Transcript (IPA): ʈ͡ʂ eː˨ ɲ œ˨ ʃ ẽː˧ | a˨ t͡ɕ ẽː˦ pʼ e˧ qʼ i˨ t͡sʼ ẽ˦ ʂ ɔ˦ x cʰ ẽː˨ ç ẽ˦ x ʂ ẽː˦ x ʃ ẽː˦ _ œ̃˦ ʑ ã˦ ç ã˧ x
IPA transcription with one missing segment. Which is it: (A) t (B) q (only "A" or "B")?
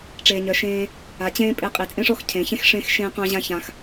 B